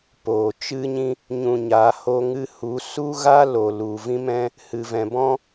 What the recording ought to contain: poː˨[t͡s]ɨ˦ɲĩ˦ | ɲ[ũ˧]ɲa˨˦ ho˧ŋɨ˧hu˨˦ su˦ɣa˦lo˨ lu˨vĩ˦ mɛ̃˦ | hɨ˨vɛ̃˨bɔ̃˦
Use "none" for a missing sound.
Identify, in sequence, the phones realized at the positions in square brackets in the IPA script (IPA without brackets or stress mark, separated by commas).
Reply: t͡ʃ, ũ˧